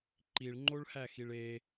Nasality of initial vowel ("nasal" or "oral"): oral